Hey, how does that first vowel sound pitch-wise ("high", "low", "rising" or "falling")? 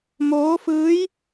rising